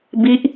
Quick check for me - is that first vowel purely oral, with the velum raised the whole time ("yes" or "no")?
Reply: yes